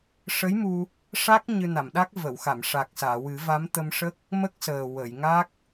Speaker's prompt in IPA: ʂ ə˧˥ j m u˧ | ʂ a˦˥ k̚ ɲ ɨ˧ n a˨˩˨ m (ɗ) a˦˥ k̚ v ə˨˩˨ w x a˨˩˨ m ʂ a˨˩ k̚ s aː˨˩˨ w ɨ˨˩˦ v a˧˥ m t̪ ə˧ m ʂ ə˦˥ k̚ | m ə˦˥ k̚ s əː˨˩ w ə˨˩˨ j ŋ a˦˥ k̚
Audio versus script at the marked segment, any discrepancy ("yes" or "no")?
no